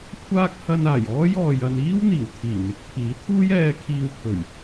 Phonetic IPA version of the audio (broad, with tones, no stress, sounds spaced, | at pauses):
kʷʰ aː˥ k̚ h ɐ˧ n aː˨˩ j ɔː˥ j ɔː˨ j ɐ˧ n iː˥ w n̪ iː˨˩ w t̪ʰ iː˨˩ n̪ ɪ˨˥ k̚ pʰ iː˨˥ t̪ʰ uː˥ j ɛː˧ kʰ iː˧ w pʰ ɵ˨˩ ɥ